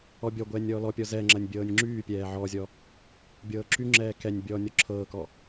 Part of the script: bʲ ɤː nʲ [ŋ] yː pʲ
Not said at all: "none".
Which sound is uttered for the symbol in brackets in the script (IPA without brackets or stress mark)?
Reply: ŋ͡ǁ